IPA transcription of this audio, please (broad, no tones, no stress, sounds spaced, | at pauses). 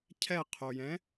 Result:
cʰ ɛ qʰ o j ɛ̃